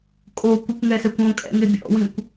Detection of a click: absent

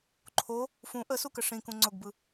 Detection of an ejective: absent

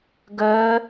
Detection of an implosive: absent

